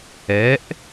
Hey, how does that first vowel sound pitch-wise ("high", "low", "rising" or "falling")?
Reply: rising